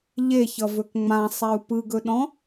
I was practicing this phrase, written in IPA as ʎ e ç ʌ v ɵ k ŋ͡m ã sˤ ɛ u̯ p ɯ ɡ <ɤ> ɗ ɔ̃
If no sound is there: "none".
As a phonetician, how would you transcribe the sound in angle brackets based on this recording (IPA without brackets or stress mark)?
ɵ